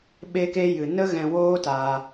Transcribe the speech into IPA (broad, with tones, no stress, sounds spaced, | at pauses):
ɓ e˧ k e˧ j ɨ˨ n ə˦ ɣ ɛ̃˧ w oː˦ t aː˧